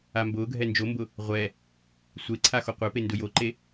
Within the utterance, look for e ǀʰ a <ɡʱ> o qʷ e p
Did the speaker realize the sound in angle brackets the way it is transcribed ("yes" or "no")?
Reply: no